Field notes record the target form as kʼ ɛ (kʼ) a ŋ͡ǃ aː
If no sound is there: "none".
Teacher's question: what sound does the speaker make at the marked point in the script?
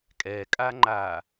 kʼ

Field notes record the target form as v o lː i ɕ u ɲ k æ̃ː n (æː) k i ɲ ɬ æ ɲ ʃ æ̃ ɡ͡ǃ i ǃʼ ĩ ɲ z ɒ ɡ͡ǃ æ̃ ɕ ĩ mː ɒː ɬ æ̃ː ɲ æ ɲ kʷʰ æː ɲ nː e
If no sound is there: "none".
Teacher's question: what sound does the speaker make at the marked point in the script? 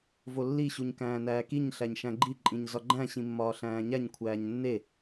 æː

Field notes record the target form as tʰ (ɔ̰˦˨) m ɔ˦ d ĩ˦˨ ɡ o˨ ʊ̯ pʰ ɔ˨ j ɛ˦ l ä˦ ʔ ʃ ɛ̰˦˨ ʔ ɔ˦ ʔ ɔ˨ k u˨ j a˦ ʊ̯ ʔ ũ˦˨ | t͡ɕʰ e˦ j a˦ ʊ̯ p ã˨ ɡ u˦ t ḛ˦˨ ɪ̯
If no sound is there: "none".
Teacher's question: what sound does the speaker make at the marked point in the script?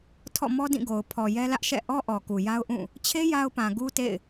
ɔ̰˦˨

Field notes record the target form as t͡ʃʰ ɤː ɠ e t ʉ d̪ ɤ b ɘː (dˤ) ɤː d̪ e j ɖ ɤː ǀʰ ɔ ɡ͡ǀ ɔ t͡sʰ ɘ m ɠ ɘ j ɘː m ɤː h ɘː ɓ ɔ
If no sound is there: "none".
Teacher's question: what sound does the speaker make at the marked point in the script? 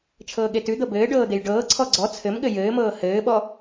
ɖ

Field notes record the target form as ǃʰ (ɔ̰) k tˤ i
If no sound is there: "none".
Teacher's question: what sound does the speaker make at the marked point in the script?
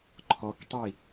ɔ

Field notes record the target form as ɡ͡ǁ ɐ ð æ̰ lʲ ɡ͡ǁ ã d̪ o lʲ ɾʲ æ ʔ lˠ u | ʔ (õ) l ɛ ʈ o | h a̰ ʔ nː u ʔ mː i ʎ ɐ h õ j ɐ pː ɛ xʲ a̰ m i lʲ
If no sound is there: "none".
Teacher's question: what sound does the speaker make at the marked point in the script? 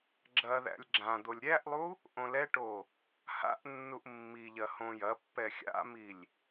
õ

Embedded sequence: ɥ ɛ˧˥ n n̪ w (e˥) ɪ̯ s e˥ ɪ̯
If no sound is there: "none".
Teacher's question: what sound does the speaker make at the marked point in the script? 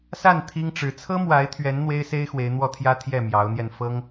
e˥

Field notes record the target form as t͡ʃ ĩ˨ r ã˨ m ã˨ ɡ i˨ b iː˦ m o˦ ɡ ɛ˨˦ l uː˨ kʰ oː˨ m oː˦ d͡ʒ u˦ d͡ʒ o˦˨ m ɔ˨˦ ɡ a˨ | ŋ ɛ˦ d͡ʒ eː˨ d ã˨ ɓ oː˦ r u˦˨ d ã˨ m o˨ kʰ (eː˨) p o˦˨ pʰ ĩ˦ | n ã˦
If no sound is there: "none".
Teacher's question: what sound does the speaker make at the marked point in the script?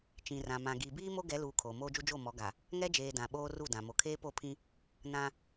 eː˦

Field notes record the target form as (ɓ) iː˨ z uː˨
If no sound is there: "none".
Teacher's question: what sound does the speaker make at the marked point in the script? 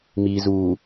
m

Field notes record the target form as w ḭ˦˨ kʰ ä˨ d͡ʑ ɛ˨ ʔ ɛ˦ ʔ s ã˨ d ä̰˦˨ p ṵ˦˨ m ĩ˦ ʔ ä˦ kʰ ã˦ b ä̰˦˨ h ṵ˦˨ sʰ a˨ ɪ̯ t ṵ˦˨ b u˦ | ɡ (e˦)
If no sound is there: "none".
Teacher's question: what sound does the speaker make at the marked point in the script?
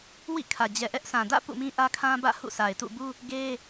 e˦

